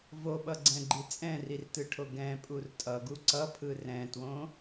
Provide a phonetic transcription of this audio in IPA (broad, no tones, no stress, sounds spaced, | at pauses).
v o ɓ ʌ ɡ͡ǀ ɛ̃ ɡ͡ǃ i t͡sʼ ɛ̃ r i r t ɯ ʈʰ o ɡ ɛ̃ pʼ u r tʼ ʌ ɡ u ǀ ʌ pʰ ɯ r ɛ̃ t w õ